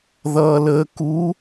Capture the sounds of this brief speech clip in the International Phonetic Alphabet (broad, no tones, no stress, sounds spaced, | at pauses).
ð ʌː l əː k u